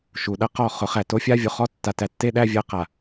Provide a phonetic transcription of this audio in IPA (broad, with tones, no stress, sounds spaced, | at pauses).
ʃ u˨ ɗ ɐ˦ q ɔ˦˨ χ ʊ˨˦ χ æ˨ t o˦ fʲ a˦ vʲ o˨ χ ɔ˦ tː a˨ t æ˨ tː e˦ ɗ æ˦ vʲ ɐ˦ q a˨